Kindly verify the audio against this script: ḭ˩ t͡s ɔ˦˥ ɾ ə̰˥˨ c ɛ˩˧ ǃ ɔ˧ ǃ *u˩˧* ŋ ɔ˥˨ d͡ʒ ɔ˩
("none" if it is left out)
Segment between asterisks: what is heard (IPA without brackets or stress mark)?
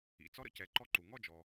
u˩